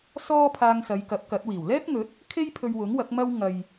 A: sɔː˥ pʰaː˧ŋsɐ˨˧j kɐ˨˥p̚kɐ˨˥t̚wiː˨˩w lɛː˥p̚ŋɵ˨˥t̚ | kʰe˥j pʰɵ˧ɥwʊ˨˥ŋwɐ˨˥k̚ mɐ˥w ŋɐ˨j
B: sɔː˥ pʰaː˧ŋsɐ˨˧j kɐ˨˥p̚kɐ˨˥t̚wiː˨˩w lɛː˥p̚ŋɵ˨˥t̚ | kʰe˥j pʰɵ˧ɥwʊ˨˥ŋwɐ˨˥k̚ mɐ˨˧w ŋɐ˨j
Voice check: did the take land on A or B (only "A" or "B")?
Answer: A